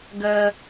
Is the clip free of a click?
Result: yes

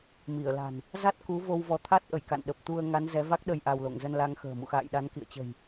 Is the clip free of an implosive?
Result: no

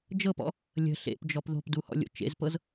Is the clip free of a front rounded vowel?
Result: yes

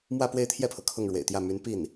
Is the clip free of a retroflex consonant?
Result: no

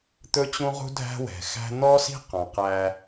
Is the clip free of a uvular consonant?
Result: no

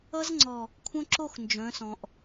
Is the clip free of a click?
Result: no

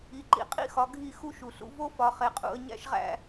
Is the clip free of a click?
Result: no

